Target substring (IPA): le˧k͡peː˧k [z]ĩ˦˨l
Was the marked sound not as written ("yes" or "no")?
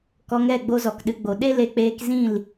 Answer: no